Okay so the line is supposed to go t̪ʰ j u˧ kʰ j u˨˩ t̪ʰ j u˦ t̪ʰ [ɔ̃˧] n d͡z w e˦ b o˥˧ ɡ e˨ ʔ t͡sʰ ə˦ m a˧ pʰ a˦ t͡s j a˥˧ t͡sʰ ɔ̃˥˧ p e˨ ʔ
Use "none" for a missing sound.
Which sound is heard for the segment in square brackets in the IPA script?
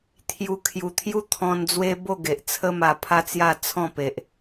ɔ̃˧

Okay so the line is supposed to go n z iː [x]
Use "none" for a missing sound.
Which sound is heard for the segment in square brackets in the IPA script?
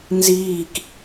k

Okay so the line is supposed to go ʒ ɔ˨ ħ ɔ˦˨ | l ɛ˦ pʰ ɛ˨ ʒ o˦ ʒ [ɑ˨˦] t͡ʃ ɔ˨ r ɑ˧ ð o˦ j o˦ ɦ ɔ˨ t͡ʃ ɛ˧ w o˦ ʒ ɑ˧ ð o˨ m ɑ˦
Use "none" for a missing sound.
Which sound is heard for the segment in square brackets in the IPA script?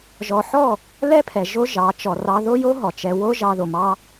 ɑ˨˦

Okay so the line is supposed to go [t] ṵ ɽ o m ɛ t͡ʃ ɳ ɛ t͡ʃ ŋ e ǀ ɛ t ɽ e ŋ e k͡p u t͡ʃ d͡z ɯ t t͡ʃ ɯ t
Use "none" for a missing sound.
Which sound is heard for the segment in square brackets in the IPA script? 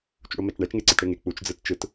t͡ʃ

